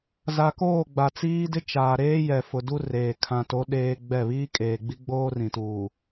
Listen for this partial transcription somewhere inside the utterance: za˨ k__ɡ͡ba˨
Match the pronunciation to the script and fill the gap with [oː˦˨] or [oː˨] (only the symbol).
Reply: oː˦˨